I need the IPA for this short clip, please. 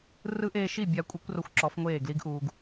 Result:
r ɯ˧˥ ʔ eː˧ ʃ i˥˩ bʲ a˧˥ kʷʼ e˧˥ kʷ r o˧˥ xʷ ǁ ɔ˧˥ f ŋʷ eː˥˩ ɡ l i˧˥ ɡ ʔ uː˧ ɡ

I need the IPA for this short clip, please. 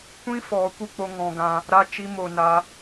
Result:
kʷ ĩ˦ f ɔ˨˦ kʷ ɨ˧ k͡p o˧ ŋ ɔ̃˧ ɡ ã˧ | ɾ a˦ t͡ʃ i˦ m o˧ n a˦

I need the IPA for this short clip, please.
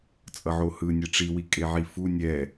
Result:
t͡sʼ ʌ ʕ o h ɯ nʲ ɛ ʈ͡ʂ i w i kʼ e ʕ i f u nʲ ɛ

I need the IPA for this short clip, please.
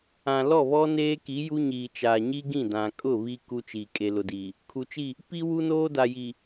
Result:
ã˨ l ɔ˦˨ β ɔ˦ n eː˦ k i˨˦ j u˦ ɲ iː˨ t͡ʃ aː˨ ɲ i˦ ɡ ĩ˦˨ d ã˨ kʼ ʊ˦˨ β i˦ k u˦ t͡ʃ iː˨ kʼ e˨ l ʊ˨ d iː˨ | kʰ u˨ t͡ʃ i˦˨ | p i˦ w u˦ n oː˦ d a˨ j i˨

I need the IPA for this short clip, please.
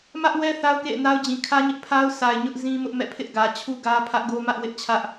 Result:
m ä˦ ʔ w ɛ˦ θ a˦ ʊ̯ k ḛ˦˨ ɪ̯ n a˦ ʊ̯ d͡ʑ ĩ˨ kʰ ä˦ ɲ ɪ˦ ʔ pʰ a˦ ʊ̯ s a˨ ɪ̯ ɲ ʊ˦ ʔ z ĩ˦ m ʊ˦ ʔ m ɛ̰˦˨ pʰ ɪ˦ ʔ ɡ ä˨ t͡ɕʰ u˦ ɡ ä˦ pʰ ä˦ ʔ ɡ o˦ m ä˦ ʔ w ɪ˦ ʔ t͡ɕʰ ä˦ ʔ

